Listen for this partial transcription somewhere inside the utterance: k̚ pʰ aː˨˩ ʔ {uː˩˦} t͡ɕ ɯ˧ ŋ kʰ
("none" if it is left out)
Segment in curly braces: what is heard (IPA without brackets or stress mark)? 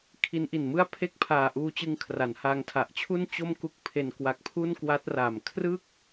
uː˧